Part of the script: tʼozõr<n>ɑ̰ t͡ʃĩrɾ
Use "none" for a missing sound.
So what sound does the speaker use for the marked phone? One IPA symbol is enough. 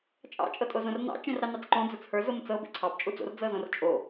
n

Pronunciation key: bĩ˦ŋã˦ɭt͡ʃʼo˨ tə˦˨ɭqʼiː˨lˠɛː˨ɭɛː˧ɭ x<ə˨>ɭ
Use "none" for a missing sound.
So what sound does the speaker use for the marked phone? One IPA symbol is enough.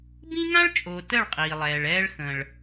ə̃˨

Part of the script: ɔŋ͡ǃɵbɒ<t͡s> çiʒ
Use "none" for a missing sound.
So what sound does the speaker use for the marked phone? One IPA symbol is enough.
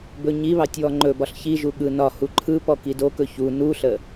ɬ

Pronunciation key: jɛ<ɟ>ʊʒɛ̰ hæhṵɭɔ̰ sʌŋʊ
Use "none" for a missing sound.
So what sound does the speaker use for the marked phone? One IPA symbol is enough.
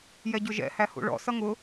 ɟ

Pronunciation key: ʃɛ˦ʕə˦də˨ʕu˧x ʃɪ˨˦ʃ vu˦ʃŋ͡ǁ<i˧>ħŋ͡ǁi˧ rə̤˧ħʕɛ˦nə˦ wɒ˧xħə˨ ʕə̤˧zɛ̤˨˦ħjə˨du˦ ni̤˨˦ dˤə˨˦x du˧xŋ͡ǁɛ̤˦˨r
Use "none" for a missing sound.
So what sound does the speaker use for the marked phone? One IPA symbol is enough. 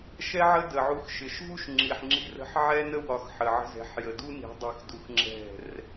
i˨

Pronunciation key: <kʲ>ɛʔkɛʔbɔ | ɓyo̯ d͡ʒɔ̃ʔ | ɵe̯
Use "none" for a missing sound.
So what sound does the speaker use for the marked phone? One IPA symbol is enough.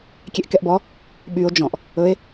kʲ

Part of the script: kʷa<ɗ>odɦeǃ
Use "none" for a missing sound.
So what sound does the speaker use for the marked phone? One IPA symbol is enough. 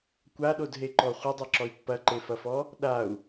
ɗ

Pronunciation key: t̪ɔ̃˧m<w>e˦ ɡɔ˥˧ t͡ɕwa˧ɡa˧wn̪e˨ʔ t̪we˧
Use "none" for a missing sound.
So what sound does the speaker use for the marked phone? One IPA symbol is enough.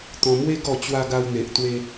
w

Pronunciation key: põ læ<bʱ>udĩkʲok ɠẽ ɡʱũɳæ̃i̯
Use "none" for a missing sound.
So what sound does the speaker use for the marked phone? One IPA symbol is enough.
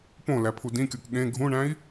pʰ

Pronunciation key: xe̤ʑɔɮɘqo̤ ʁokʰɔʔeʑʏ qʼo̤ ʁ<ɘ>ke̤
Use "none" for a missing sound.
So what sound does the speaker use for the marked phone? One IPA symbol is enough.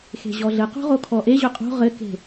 ɘ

